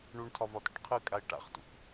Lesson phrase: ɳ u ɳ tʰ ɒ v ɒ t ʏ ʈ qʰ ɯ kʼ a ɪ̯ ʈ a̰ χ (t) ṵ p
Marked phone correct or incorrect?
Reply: correct